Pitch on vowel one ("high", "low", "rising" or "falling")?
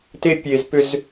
high